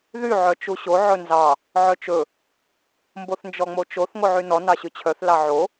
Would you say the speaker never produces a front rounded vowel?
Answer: no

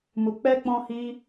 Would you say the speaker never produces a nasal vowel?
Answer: no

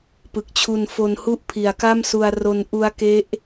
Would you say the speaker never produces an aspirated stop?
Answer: no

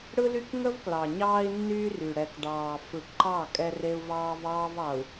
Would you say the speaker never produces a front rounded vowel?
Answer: no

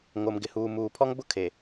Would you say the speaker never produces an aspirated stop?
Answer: no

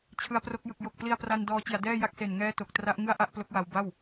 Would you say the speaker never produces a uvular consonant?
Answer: yes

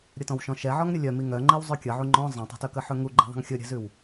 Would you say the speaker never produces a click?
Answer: no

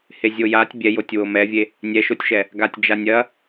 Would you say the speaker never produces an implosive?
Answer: yes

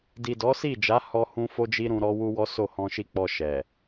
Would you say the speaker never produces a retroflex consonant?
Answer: yes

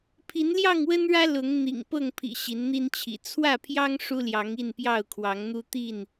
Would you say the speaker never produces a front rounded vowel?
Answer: yes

